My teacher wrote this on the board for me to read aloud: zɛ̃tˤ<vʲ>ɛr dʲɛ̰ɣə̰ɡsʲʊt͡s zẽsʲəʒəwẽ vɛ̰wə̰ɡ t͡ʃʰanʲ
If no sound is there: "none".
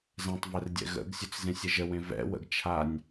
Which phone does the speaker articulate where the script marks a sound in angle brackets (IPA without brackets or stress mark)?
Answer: v